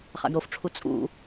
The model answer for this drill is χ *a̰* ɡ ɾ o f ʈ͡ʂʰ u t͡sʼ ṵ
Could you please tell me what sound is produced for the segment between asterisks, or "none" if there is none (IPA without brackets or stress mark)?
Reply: a̰